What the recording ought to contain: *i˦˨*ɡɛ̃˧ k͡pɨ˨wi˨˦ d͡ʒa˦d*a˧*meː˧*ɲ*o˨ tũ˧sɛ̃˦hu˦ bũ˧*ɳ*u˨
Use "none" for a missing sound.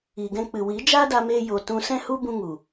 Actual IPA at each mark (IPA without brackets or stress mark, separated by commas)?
i˨, a˧, j, ŋ